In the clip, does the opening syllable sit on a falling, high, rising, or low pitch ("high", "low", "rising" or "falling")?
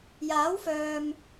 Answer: rising